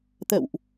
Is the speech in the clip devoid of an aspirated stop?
yes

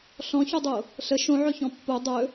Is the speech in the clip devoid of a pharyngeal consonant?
no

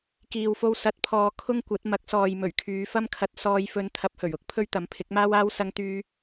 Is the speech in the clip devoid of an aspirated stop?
no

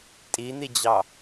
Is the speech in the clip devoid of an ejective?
no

